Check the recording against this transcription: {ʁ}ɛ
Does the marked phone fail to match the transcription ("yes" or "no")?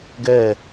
yes